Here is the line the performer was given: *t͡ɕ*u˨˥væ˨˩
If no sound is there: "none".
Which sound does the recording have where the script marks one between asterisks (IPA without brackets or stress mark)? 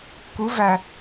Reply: k